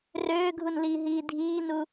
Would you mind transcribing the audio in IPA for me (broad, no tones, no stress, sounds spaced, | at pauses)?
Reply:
r øː ɡʱ u n l iː ɦ iː dʱ iː n u